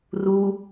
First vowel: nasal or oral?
oral